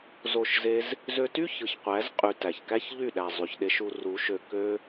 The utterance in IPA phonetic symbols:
z o˦˨ ʃ z e˦ z | z ø˧ t y˦ ç ɯ˨ ç qʷ æ˨˦ z qʼ y˧ t æ˨ ç k æ˦ ç ʎ y˦˨ ɗ æ˨ zˤ y˨ ç ɗ e˧ ʃ u˧ r u˨˦ ʃ ø˧ k ø˦

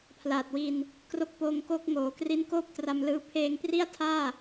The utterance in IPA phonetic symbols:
pʰ l aː˨˩ t̚ w i˧ n | k r o˦˥ k̚ p oː˧ ŋ k o˦˥ k̚ ŋ oː˩˦ k r i˦˥ n k oː˥˩ p̚ t r a˧ m l ɯː˧ pʰ eː˧ ŋ p r i˥˩ a̯ tʰ aː˥˩

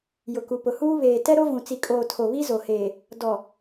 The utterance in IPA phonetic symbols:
j ʊ˨ k u˨ p ʊ˨ h uː˦ β eː˨ t ɛ˦ ɾ o˦ v ũ˨ t͡s i˨ kʼ oː˨ tʰ o˨ β i˦ z o˨ h eː˨ | d ɔ˨

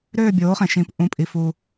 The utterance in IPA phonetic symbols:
ɾ øː˥˨ bʲ oː˩˥ χ ẽ˩ ʃ ĩ˩˥ p ʔ ũ˩˧˩ pʼ i˩ f u˩

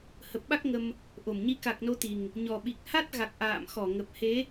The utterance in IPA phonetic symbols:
h ə˨˩ p̚ ɓ a˦˥ k̚ ŋ ə˧ m | ʔ o˧˩ m ɲ i˨˦ k a˨˩ k̚ n o˨˦ t̪ i˨˩ ŋ | ɲ ɔ˨˩ ɓ i˨˩ k̚ h a˦˥ t̚ ɣ a˨˩ k̚ ʔ a̰ː˧˨ m x ɔ˧˩ ŋ ə˨˩ p̚ h e˨˦

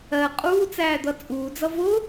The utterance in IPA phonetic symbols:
ɜ qʼ uː t͡s æː d̪ ʌ t͡sʼ uː d͡z ʌ v ʊ

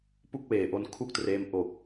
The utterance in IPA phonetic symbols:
p u˥˩ k̚ w eː˨˩ ʔ o˧ n kʰ u˥˩ k̚ t r eː˦˥ m ʔ o˨˩ k̚

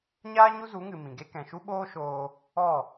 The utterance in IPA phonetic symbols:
ɲ aː˦ ɲ u˦ z u˨˦ ŋ ɨ˨ m ĩ˨ ɡ e˦ k ɛ̃˨ ʃ u˦ ɓ oː˦ ʃ oː˧ | ɔ˦˨

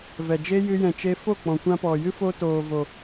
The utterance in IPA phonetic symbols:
v ɛ˨ d͡ʒ e˦ j ɨ˧ j ɛ̃˨ t͡ʃ e˧ f o˦˨ k͡p ɔ̃˨ kʷ ã˦ p ɔ˨ j ɨ˦ f o˧ t oː˨ v o˨

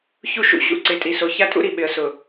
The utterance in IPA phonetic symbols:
ç u˦ ʃ ṵ˨ ɕ ṵ˨ ǀ ɪ˨˦ tʼ i˨ s o˨ ç a˦ tʼ ṵ˦ ɾ i˨ ɓ ɪ˨ ə̯ s ʊ˨

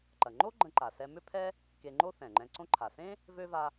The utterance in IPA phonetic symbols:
ǃ ɐ˩ ŋ͡ǃ o˥ ɡ͡ǃ ə̃˧ ǃ a˩ s ɛ˧ m ʏ˥ pʰ ɛ˥ | k e˧ ŋ͡ǃ o˥ θ ɛ̃˩ ŋ͡ǃ ɛ̃˧ ǀ õ˥ ǃʰ a˩ s ẽ˥ | v ø˥ v a˧

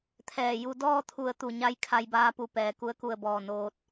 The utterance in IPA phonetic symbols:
t̪ʰ ɛː˧˩ j u˧ d ɔː˥˨ t̪ʰ u˧˩ ə̯ t̪ u˧˩ ɲ a˧˥ j kʰ a˧ j b aː˧ p u˧˩ p ɛː˩ k u˧˥ ə̯ k u˧˩ ə̯ b ɔː˧˩ n oː˧ t̚

